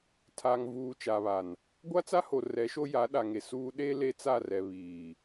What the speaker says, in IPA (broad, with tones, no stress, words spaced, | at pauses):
tʰa˨ŋvuː˨ t͡ʃa˨βa˨n | ɡʷa˦t͡sa˦ho˨ rɛ˨˦ʃo˦ ja˨˦ɗa˨ŋe˨suː˦ ɗe˦ le˦t͡sa˦˨rɛ˨ βiː˨